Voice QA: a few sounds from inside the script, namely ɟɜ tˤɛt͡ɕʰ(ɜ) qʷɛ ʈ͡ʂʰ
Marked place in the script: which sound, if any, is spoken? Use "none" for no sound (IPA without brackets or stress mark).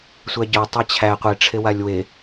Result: æ